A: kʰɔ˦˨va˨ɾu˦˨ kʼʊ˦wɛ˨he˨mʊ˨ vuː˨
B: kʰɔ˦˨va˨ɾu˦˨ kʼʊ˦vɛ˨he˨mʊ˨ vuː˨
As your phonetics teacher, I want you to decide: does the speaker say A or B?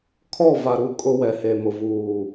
A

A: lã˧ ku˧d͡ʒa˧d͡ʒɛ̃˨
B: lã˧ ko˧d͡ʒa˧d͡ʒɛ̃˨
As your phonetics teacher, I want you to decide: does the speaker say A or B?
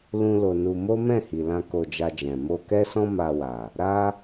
B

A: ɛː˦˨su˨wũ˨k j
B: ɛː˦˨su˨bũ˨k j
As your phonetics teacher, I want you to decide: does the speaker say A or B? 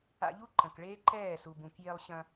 B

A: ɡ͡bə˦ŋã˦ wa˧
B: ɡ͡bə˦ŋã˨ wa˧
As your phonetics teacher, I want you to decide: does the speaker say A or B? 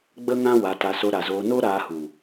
A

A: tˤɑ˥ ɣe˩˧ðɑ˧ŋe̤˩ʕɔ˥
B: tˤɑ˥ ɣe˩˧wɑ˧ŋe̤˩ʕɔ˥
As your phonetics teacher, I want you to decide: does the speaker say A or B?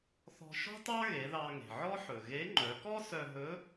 A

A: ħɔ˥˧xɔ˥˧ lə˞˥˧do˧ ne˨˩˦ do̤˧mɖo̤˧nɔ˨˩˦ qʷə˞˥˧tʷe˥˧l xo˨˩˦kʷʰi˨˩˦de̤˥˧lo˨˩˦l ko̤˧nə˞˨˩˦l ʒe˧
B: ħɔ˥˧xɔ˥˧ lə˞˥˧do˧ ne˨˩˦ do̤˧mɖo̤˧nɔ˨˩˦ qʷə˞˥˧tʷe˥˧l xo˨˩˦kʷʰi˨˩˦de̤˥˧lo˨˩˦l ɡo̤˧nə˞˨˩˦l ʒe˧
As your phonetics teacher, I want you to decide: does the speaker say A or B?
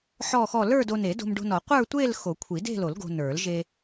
B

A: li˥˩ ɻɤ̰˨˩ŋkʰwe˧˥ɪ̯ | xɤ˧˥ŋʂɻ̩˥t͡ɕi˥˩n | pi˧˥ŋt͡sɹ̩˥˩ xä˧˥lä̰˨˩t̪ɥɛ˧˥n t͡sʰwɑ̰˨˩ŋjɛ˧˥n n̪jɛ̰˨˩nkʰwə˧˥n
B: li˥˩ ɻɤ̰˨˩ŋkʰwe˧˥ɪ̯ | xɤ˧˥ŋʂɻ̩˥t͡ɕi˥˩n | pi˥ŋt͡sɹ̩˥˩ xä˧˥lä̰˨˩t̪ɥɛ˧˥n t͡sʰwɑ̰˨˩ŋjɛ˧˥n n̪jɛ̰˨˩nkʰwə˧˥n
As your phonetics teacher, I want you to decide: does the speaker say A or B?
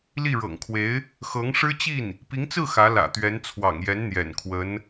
A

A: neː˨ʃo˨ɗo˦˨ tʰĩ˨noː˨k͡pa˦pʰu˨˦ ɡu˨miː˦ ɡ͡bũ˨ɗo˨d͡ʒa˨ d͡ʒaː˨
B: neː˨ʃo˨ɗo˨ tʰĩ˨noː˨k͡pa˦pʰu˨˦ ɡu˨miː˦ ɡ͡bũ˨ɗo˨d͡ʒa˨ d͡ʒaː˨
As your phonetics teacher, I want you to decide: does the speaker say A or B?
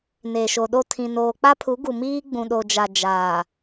A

